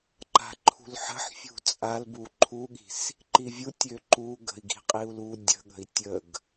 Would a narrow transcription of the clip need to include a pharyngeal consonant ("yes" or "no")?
yes